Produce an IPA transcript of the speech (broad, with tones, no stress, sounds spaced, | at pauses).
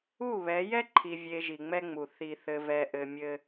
u˦˨ β ɛ˨˦ j ɛ˦ ǃʰ i˨ vʲ e˨ ʒ i˨ ŋ͡m ɛ˦ ŋ͡m u˨ θ i˨ θ ɘ˨ v ɛ˨ ʔ ɘ˨ mʲ ɘ˦